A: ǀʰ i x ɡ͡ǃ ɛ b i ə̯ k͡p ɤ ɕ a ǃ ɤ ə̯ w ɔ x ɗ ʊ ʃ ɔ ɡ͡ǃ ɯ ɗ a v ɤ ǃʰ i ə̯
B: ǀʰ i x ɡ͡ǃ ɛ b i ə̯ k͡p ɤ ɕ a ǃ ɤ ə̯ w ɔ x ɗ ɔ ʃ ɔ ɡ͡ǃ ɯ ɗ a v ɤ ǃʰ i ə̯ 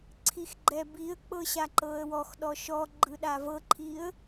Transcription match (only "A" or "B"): B